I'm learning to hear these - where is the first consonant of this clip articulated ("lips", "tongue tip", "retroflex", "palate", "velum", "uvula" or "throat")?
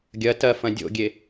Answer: velum